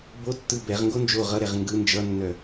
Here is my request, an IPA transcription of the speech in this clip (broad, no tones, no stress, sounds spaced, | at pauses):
b o tː ɯ b ɛ ʁ ŋ ɡ o n d͡ʒ o ʁ ʌ ɾ ɛ ʁ ŋ ɡ ɯ n d͡ʒ ʌ nː œ